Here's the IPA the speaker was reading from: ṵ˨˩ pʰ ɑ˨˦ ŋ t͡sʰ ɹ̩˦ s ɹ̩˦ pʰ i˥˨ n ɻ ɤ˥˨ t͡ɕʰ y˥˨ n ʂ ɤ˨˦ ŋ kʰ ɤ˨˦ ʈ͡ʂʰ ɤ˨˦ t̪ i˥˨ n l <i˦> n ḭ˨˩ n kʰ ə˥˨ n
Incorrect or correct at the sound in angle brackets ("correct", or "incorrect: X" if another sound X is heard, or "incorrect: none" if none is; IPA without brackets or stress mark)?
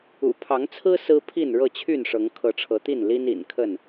correct